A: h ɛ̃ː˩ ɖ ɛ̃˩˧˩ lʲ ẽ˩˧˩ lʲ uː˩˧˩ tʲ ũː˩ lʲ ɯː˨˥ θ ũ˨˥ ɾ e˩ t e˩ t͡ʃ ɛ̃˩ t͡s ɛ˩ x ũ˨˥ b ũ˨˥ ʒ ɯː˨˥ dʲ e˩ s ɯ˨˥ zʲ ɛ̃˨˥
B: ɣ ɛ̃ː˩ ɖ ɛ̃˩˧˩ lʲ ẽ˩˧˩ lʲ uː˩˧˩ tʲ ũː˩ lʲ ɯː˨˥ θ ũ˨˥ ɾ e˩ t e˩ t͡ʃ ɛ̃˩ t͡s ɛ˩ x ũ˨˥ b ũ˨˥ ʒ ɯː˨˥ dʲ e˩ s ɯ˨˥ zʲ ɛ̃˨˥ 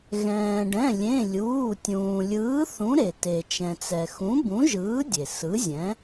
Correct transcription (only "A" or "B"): B